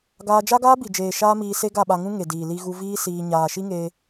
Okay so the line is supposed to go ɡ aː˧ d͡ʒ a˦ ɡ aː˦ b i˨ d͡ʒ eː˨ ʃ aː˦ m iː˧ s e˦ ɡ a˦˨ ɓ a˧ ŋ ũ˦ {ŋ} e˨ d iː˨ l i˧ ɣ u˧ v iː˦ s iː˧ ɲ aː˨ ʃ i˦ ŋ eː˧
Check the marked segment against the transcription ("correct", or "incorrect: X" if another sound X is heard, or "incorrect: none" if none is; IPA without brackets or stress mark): correct